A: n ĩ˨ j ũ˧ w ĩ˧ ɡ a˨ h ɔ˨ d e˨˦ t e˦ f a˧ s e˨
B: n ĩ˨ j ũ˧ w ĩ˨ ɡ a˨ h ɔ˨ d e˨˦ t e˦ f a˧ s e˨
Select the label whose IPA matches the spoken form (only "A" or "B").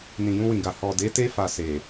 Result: B